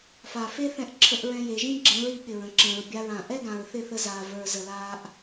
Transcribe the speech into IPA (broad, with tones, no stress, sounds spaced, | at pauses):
f a˨ f e˦ θ ɛ̃˧ ʔ ǁʰ ə˧ ʔ ɹ ɛ̃˧ j e˨ ʒ ĩ˦ ɡ͡ǁ ə̃ː˨˦ ɹ i˨ ɠ ɪ˨ ɹ ə̃˨ ǁ ə̃ː˨ ɹ bʲ a˧ ɹ ã˨ ʔ ɛ˦ ɡ ã˨ ɹ θ ɪ˦˨ θ ə˧ z aː˨ v ə˞˨ z ə˨ l aː˧ ʔ